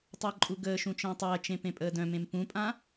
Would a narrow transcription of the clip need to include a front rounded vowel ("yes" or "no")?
yes